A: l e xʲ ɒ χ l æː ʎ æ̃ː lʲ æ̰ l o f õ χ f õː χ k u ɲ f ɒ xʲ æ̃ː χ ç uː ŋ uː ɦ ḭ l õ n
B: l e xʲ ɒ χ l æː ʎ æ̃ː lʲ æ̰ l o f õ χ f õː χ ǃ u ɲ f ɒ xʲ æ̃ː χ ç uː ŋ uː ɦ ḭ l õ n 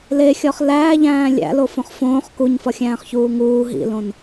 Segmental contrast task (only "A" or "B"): A